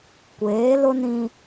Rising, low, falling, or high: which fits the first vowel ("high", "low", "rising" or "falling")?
rising